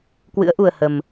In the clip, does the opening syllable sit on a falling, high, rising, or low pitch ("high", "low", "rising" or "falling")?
rising